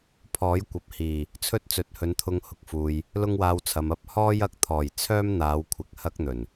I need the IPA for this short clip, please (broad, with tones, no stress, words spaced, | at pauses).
pʰɔː˨˥jkʷɐ˨p̚hiː˨˩ | t͡sʰɵ˥t̚t͡sɵ˨˥t̚hɵ˨˧nt̪ʰʊ˧ŋ hʊ˨˥k̚fuː˨j | lʊ˥ŋwaː˧wt͡sʰɐ˨m ɐ˥p̚hɔː˥jɐ˧k̚ t̪ʰɔː˨˩j t͡sʰœː˥mn̪aː˨˧wkʷʰɪ˨˥k̚ hɐ˥k̚n̪ɵ˨˩n